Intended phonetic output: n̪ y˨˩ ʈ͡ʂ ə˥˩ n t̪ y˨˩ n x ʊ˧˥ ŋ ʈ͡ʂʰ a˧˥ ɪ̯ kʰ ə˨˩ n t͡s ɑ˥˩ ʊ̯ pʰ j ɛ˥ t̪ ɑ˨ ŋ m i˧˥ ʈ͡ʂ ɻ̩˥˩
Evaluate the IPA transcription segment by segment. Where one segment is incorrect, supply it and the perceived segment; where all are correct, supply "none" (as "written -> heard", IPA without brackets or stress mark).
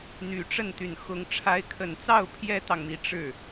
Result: none